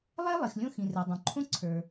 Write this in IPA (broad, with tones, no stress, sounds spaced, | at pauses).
lˠ ɛ˥ lˠ i˩ x lʲ õ˧ x ĩ˩ r ɛ˩ dˤ õ˩ ǃʰ õ˥ ǀʰ ə˞˩